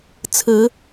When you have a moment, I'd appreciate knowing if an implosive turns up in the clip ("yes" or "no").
no